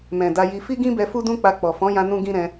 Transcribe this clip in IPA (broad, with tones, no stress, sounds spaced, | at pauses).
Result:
m ɛ̃˨ d a˧ j i˧ f i˦ ɡ ĩ˦ b ɛ˧ f u˦ d ũ˦ k͡p a˧ k͡p ɔ˨ f ɔ̃˨˦ j ã˧ n ũ˦ ɡ ĩ˦ ɾ ɛ̃˧